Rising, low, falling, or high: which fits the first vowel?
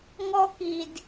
high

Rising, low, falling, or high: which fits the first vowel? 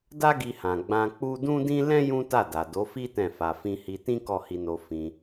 high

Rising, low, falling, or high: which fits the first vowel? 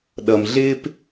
low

